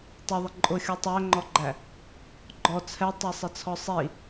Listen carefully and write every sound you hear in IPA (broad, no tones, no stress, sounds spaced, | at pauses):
tˤ ɪ ðˤ ɪ ǃʼ ʊ xʲ u tˤ æ ŋ͡ǃ ɔ ɡ͡ǃ æ | ɡ͡ǃ ɔ t͡sʰ ɛ tˤ ɜ sˤ ɪ t͡sʰ ɔ sˤ i